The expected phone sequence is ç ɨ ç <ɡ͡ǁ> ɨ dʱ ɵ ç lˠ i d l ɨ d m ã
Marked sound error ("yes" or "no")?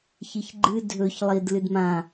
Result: yes